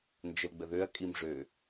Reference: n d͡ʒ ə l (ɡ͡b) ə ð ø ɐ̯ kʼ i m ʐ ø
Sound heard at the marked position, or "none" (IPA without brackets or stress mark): ɡ͡b